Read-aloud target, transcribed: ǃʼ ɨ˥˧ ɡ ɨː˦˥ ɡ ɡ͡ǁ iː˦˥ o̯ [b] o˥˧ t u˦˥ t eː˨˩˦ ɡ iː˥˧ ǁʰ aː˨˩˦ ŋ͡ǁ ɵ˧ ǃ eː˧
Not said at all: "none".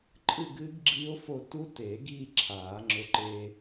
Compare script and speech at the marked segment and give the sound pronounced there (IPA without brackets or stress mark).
f